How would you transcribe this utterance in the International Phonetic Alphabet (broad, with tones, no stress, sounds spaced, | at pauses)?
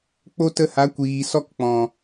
k͡p o˦ t ə˧ h a˨˦ kʷ iː˨ s ɔ˧ k k͡p ɔ̃˨